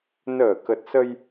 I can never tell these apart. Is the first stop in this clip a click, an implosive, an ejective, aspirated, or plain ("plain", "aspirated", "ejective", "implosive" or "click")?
plain